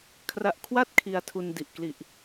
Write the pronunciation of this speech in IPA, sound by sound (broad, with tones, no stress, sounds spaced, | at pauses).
kʰ r a˦˥ ʔ kʰ w a˥˩ t̚ kʰ i˧ a̯ tʰ u˧ n d i˨˩ ʔ k l i˨˩ ʔ